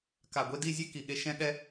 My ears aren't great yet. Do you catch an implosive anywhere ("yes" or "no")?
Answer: yes